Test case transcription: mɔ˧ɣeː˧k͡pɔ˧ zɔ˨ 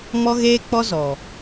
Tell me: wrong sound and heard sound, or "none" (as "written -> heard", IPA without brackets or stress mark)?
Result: none